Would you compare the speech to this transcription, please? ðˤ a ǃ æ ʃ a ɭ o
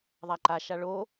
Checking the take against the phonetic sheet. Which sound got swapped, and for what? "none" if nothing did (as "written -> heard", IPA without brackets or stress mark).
æ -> a